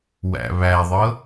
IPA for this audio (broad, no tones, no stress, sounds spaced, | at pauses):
w æ̰ β æ ðˤ ɤ